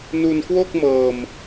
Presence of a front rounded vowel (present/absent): absent